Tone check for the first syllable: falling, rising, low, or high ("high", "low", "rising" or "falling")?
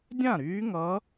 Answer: falling